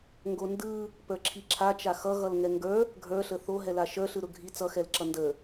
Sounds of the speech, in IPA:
ŋ ɡ o n d ɯ | p ə˞ ǁʰ i ǁʰ a t͡ʃ a x ʌ ɣ ʌ l ŋ ɛ ŋ ɡ ə˞ | ɡʱ ə˞ ɬ ə θ o ɦ ɛ l a ʃ ə˞ ɬ ɯ ɾ ʊ ɡʱ i t͡s ʌ x ɛ l ǁ ʌ n d ə

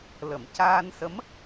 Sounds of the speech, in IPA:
l ə˨˩˨ m c aː˧ n s ə˧˥ m

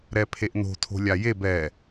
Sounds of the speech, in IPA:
ɾ ɛ pʰ e ʔ n o̤ tʰ o̤ lʲ a j e b ɛ

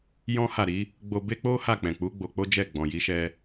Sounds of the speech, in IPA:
j ɔ̃˦ h a˦˨ ɾ i˨˦ | ɡ͡b o˧ b e˦ k͡p o˦ h a˦˨ k͡p ɛ̃˨ k͡p u˨˦ ɡ͡b o˧ k͡p o˦ d͡ʒ ɛ˦˨ ɡ͡b ɔ̃˨ j i˨˦ ʃ ɛ˧

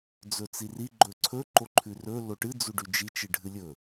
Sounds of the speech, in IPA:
d͡z ɵ t͡s i r i ɡ͡ǃ ɵ ǀʰ ɵ ǃ o ǃʰ ʉ r ɵ l o ʈ ɨ d͡z u ɖ ʉ d͡ʒ i t͡ʃ ɨ ɖʱ ɨ lʲ ɵ

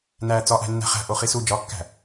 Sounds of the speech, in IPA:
n æː t͡s ɒ ʔ æ̤ nː æ̤ χ æ̤ ʔ o χ i s u d͡ʒ ɒ kː æ̤

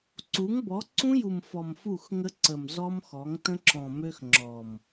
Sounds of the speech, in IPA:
ǀ u˨˦ ŋ b ɔ˨˦ ǀ ũ˦ j u˨ m f ɔ˨ m f u˦˨ x ŋ ə˦ ǀ ə˨ m z ɔ˦ m x ɔ˨˦ ŋ t ə̃˦ ǁ ɔ̃˨ m ø˦ x ŋ͡ǁ ɔ˨ m

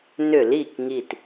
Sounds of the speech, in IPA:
n ʏ˧˩˧ l i˧˩ k ŋ i˧˩ t

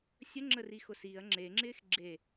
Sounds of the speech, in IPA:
sʲ ə ŋ͡ǁ ə r i x ʊ s i ɐ̯ ŋ͡ǁ e ŋ͡ǁ ɪː x ɡ͡ǁ e

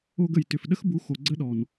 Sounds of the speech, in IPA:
o˧ ɡ ə˨ j t ʏ˨ f ɗ ə˦ x b u˨˦ x o˨ ɡ͡ǀ ə˦ ɗ ɔ˨ n

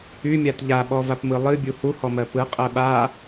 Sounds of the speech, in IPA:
y mʲ a t ʎ a ɓ ɔ v a p m ɯ lˠ ɨ bʲ u h u h ɔ m ɜ p ɯ qʼ ɜ ɓ a

